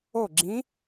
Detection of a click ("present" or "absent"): present